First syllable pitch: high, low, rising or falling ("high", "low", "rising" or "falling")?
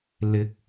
rising